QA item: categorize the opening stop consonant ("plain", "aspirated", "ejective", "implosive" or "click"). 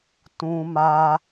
plain